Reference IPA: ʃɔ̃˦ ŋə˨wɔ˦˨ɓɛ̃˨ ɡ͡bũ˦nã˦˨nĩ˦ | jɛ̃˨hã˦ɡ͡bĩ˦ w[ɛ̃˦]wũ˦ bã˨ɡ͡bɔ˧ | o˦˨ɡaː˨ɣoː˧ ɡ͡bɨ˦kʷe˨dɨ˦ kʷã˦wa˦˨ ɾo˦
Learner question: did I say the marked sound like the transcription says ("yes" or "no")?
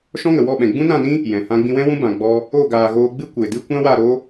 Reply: yes